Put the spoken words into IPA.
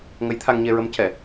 ŋə˧˥jt̪ʰa˧ŋɲe˧ɹə˧˥m cɛ˨˩˨

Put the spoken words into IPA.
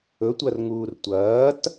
ɵtʷɐrŋuːr tʷɐːt

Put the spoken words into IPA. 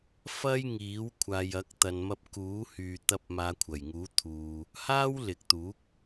fɐ˥jŋiː˨˥w kʷʰaː˨jɐ˨˥k̚t̪ɐ˨nmɐ˧p̚ kuː˨˥hyː˨t̪ɐ˧p̚ maː˨˧kʷʰɐ˨˩jŋuː˨˥t̪ʰuː˨ | haː˥wlɪ˨k̚t̪uː˨˥k̚

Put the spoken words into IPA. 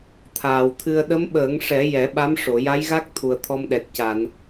t̪ʰaː˨˩wt̪ʰɨ˧ə̯ ɗə˧˥mɓəː˨˩˦ŋʂɛ˨˩˦ jɛ˨˩˦ɓa˧˥mʂo˨˩˨ ja˧˥jɣa˦˥k̚ t̪ʰu˨˩ə̯t̪ʰɔ˧mɗɛ˨˩t̚ ca˨˩˨n

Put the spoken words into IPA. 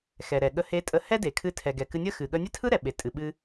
xɛ˩ɾɛ˩ ɠə˧he˧tʼə˧ hɛ˥de˩kʰɨ˧ tʰɛ˩ɡɛ˩ kɨ˧nʲə˥ xɨ˩ ɠə˧nʲɛ˥tʰɯ˥ ɾɛ˩ɓe˩ tʼɨ˩ɓɨ˧

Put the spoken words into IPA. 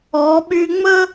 ɔː˩˧ɓyː˧ ŋ͡mə˥

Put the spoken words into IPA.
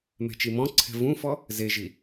mɛ̤t͡ʃimɔ̃ǀʰɛ̤ vũfɔ | zeʒi

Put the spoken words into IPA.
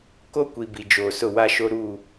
ko˦kʷi˨ bi˨d͡ʒoː˨sʊ˦˨ wa˦ʃo˦ ɾuː˦˨

